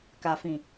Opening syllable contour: low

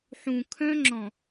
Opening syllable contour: low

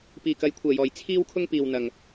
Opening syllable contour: low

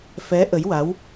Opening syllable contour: rising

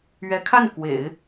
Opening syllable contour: rising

